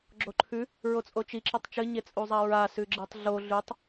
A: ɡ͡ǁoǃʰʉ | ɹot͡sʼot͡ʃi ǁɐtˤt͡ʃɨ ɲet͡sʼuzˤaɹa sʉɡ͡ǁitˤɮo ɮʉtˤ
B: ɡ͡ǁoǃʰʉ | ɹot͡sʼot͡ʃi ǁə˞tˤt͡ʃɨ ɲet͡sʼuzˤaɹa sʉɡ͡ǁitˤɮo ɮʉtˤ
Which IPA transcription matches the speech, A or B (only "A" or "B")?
A